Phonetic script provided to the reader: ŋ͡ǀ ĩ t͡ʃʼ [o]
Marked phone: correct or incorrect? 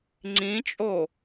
correct